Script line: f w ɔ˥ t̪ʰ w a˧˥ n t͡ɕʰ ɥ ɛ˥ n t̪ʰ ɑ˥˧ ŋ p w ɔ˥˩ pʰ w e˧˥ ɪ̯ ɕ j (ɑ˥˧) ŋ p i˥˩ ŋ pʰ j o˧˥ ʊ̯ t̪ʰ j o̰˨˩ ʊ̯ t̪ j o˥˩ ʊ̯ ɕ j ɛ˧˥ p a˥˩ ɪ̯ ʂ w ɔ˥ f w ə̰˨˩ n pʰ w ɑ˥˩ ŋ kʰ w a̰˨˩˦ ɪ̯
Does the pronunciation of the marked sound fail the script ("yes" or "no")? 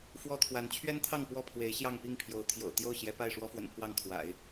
no